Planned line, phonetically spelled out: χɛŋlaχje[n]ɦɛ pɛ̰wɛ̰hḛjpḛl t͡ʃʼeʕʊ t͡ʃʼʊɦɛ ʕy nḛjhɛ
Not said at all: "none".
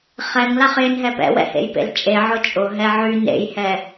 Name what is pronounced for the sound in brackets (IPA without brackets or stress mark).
n